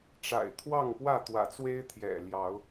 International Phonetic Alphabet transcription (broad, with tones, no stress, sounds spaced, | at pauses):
ʈ͡ʂ a̰˨˩ ɪ̯ t̪ʰ w ɑ˥˨ ŋ p w ä˥˨ t̪ w ä̰˨˩ t͡s w e˦ ɪ̯ t̪ʰ j ɛ̰˨˩ l j ɑ˨˦ ʊ̯